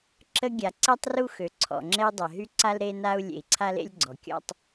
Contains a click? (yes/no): yes